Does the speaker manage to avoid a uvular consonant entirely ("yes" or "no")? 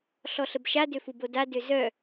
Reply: yes